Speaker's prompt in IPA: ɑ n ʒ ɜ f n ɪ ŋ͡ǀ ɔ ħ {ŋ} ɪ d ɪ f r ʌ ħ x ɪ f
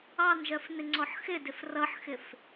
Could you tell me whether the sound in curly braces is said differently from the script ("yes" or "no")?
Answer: yes